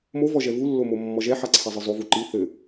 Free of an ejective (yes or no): yes